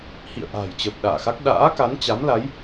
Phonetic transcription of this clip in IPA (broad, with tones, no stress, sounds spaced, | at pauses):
h ḭ˧˨ ə̯ ʔ a̤ː˨˩ j t͡ɕ əː˨˩ p̚ ɗ a̰ː˧˨ x a˦˥ k̚ ɗ a̰ː˧˥ k a˨˦ n t͡ɕ a˨˦ m l a˨˦ j